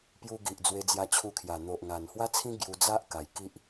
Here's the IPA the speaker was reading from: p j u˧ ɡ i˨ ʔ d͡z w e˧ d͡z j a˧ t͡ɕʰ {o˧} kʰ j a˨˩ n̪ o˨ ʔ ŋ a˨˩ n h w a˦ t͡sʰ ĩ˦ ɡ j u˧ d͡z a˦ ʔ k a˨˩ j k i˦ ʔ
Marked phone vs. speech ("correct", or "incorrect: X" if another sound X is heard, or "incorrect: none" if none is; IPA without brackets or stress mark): incorrect: u˧